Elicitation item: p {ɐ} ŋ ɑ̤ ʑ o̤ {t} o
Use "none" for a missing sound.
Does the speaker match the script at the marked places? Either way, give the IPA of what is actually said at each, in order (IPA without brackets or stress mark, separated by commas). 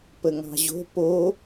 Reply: ə, p